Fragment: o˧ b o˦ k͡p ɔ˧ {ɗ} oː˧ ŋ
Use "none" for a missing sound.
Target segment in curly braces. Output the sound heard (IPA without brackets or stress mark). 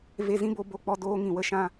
d